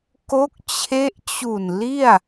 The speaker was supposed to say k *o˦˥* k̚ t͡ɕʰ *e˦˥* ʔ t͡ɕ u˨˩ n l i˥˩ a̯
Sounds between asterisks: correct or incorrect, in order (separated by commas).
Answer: correct, correct